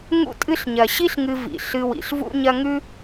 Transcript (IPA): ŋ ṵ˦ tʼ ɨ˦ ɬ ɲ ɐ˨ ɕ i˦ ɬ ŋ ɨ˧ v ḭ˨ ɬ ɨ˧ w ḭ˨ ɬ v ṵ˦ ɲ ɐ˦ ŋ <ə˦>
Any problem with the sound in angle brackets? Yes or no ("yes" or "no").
yes